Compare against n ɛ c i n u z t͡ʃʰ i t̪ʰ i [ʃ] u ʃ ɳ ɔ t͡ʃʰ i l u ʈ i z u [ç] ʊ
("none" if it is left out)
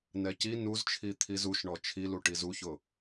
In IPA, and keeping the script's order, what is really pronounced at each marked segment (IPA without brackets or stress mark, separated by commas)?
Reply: z, ç